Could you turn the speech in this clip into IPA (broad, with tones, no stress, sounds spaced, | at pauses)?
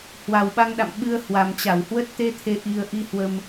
h w a˨˩ w ɓ a˧ ŋ ɗ a̰˧˨ m ɓ ɨ˧ ə̯ h w a˨˩ m t͡ɕ a˧˩ w h w ə˦˥ t̚ t̪ e˨˦ t̪ʰ e˨˩ ʔ i˧ ə̯ ʔ i˧ h w ə˧ m